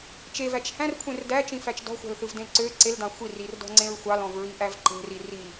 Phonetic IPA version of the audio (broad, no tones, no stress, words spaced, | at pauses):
t͡ʃevæt͡ʃ hæ̃rkʷʰẽr dæt͡ʃĩfæt͡ʃ dɔ̤xʷæ̤lθɯvdẽl ǀø ǀeldɑ̃ xʷirirdɔ̤ŋ͡ǀẽɹ xʷɑlɔ̃vɹiʔæv ǃe̤riri